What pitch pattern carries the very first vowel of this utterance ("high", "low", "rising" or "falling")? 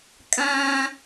high